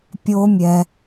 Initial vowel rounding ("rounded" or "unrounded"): rounded